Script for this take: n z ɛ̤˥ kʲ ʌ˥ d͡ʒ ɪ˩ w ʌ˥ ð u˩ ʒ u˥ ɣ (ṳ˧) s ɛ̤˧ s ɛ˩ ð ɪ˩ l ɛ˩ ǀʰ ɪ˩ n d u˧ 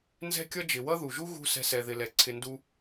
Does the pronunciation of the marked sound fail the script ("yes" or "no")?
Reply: no